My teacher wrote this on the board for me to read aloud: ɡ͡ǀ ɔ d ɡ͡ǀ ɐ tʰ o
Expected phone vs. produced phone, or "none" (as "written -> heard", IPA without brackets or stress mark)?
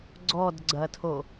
none